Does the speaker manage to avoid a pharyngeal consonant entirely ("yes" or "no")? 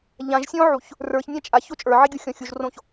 no